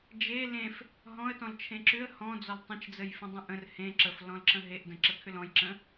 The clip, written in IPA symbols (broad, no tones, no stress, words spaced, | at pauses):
d͡ʒe lẽf | ɦɔ̃ə̯ tɔ̃lt͡ʃʰẽǁʏə̯ hɔ̃d͡zɔl tˤə̃t͡ʃd͡zəj fə̃dˤə̃ʔə̃r hẽ ǁəflɔ̃lǁə̃ ɦeʔdə̃ ǁəkʰʏlɔ̃jǁə̃